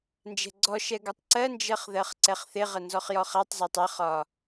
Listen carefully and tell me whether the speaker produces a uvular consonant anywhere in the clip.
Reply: yes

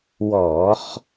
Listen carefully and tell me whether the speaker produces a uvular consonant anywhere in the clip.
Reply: yes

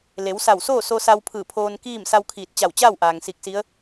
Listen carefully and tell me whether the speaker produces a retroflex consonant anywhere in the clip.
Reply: no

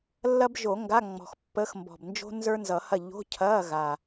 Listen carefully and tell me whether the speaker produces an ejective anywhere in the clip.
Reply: no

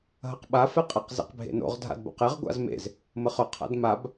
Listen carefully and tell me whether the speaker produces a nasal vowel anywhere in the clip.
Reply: no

